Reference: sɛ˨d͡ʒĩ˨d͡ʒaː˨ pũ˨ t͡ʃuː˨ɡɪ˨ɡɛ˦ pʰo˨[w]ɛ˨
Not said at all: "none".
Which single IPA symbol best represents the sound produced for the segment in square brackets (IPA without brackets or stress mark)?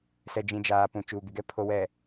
w